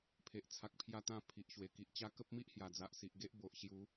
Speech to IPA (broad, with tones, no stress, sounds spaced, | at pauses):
pʰ e˨ ʔ t͡sʰ a˨ k̚ pʰ j a˧ t̪ ã˧ pʰ i˨ ʔ ɕ w e˨˩ k i˨ ʔ t͡ɕ a˦ k ə˦ p̚ m i˦ ʔ h j a˨˩ d͡z a˨ ʔ s i˨ ʔ ɡ e˦ ʔ b o˨ ʔ ɕ j u˨˦